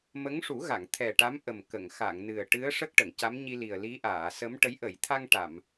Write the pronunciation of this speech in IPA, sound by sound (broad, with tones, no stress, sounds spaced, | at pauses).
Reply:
m ə˧˥ ŋ ʂ u˨˩˦ ɣ a˨˩˨ ŋ t̪ʰ ɛ˨˩ ʈ a˧˥ m ʔ ə˨˩ m k ə˨˩˨ ŋ x a˨˩˨ ŋ n ɨ˨˩ ə̯ ʈ ɨ˧˥ ə̯ ʂ ə˦˥ k̚ ʈ ə˨˩˨ ŋ c a˧˥ m ɲ i˧ l i˨˩ ə̯ l i˧˥ ʔ aː˨˩˨ s ə˧˥ m ʈ ə˧˥ j ʔ ə˨˩˨ j t̪ʰ a˧ ŋ ʈ a˨˩˨ m